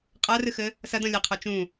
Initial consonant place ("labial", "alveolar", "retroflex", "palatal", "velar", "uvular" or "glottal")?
uvular